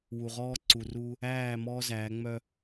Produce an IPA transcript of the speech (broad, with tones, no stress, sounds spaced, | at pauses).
w u˨ ʁ ɔː˦ ǀ u˨ r uː˦ | æː˦˨ m ɔː˦ z æː˨˦ ŋ͡m œ˦